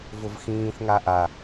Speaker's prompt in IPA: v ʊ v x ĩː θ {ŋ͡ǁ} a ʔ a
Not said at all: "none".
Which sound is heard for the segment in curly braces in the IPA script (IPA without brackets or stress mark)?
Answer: ŋ